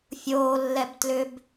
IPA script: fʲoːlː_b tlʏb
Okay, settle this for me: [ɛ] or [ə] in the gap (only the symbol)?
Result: ɛ